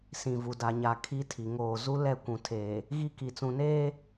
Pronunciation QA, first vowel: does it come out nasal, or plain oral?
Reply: nasal